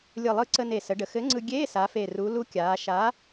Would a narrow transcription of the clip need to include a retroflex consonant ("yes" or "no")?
yes